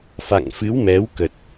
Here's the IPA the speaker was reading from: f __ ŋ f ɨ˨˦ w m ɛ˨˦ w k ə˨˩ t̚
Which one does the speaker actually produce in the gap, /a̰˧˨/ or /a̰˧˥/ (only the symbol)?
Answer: a̰˧˨